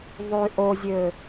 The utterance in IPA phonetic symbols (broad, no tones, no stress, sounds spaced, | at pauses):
ðˤ y ʔ o zʲ ø